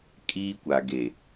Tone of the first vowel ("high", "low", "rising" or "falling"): high